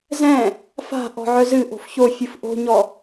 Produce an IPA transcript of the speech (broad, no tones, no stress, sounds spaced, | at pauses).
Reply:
z ɛ̃ | f a̤ ʔ ɔ̤ ʕ œ z ɨ ʔ o̤ f ç o fʲ ɨ f ʔ o̤ ɲ ɔ